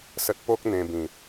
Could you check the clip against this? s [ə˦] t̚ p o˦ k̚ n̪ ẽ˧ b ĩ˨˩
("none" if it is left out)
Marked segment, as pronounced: ə˦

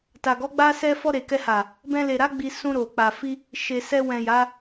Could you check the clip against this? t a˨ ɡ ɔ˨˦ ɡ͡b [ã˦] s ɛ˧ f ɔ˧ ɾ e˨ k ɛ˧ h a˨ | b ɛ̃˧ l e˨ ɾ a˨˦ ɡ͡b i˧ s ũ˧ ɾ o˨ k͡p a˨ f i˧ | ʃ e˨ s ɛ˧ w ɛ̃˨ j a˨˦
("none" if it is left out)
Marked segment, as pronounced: a˦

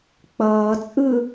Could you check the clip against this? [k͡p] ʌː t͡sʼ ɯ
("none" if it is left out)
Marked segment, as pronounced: k͡p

